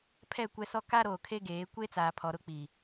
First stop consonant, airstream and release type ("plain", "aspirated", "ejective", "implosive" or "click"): aspirated